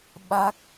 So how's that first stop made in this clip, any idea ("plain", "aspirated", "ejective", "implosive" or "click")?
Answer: implosive